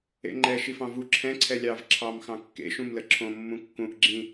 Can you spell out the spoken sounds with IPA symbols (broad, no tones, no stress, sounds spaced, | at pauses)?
ḛ ŋ͡ǃ ɛ ʃ i f ɑ̃ v u ǁʰ ɛ̃ ǀʰ ɛ lʲ ɑ v ǁʰ ɑ m x ɑ̃ kː ḛ ʃ ũ m l ə ǁʰ õ mː ũ kː ũ ʔ ɡ͡ǁ ĩ